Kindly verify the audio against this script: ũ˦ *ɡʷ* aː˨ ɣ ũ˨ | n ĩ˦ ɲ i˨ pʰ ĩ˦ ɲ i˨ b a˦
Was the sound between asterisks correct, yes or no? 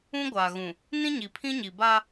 yes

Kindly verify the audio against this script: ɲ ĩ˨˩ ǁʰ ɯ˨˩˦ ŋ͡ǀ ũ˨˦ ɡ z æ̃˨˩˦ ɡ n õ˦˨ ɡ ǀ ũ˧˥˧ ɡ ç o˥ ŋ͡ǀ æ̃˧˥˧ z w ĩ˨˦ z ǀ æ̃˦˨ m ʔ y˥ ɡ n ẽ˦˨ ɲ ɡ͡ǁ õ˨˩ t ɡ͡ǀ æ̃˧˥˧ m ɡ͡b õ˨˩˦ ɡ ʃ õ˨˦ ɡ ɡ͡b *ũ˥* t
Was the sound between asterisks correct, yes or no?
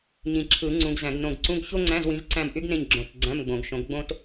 no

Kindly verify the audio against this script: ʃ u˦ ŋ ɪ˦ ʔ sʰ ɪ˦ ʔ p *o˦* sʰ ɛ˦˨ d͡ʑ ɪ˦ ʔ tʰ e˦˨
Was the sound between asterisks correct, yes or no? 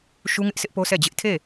yes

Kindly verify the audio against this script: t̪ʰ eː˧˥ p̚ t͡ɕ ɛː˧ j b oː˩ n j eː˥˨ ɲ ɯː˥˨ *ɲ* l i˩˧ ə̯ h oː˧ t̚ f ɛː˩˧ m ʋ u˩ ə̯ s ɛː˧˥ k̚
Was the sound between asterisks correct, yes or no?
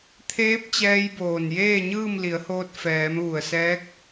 no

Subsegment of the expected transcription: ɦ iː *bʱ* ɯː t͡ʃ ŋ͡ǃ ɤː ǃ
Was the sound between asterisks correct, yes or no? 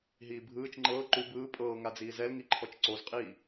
yes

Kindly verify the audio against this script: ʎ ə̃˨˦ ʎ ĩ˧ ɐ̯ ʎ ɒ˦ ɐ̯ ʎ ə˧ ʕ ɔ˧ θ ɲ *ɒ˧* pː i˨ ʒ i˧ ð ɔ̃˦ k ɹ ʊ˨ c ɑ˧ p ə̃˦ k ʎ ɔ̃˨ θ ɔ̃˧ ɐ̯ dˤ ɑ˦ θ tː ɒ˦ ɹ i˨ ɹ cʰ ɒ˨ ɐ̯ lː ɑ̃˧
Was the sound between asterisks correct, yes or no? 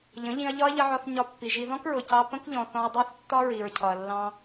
yes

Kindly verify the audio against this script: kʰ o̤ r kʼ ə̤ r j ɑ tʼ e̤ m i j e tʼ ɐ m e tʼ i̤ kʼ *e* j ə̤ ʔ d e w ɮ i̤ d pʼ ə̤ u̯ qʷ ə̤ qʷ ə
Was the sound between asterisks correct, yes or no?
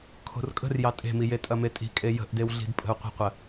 yes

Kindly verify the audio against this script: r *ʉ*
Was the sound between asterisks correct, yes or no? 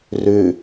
yes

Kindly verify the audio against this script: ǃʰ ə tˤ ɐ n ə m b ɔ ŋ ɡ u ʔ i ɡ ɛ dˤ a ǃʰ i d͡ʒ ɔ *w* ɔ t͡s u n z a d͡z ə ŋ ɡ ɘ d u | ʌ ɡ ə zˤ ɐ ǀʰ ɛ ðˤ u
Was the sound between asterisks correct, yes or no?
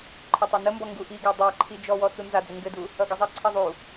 yes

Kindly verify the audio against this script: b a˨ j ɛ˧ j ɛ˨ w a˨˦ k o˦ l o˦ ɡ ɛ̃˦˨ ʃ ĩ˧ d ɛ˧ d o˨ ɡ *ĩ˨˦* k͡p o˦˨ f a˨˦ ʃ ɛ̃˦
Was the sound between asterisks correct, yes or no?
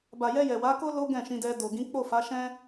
yes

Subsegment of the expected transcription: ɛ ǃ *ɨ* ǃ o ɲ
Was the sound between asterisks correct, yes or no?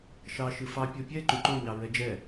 no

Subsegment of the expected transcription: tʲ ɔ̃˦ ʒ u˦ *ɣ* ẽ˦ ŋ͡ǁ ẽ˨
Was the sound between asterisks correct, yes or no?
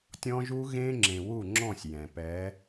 yes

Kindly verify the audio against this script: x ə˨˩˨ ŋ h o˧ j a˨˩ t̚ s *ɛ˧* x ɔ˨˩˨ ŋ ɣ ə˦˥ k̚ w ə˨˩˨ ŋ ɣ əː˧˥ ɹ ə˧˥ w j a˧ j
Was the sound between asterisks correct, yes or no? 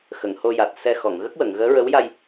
yes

